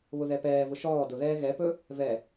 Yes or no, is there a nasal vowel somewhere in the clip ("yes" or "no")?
no